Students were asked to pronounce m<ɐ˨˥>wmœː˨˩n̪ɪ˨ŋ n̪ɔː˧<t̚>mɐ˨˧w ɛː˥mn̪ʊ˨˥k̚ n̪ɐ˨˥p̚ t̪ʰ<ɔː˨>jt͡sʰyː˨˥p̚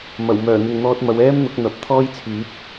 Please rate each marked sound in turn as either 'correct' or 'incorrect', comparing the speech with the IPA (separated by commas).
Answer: incorrect, correct, incorrect